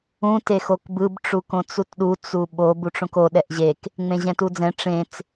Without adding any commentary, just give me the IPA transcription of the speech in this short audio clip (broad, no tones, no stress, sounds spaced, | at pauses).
ũ t e x o k b ɯ b ʈ͡ʂ u k õ t͡s u t ɗ u t͡s u ɓ o b u ʈ͡ʂ õ k o ɗ ɛ ʔ ʑ e k | ŋ͡m ẽ ʑ ɛ̃ t u d͡z ɛ̃ ʈ͡ʂ ẽ t͡s